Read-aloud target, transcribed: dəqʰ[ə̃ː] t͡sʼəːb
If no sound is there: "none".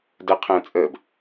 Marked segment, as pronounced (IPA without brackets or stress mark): ə̃ː